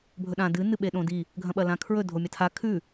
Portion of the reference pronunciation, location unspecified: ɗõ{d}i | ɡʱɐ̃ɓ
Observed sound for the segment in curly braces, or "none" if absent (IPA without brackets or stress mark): d